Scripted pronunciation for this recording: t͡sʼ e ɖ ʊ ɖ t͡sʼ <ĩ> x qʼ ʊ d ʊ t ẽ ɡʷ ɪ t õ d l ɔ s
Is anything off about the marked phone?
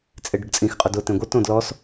no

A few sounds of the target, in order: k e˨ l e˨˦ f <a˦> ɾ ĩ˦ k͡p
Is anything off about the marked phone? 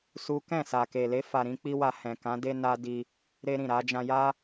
yes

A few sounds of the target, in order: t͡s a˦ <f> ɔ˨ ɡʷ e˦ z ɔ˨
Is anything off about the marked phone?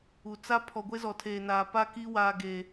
yes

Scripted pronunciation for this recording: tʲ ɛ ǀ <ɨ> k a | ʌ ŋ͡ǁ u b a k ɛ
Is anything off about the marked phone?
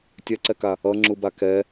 yes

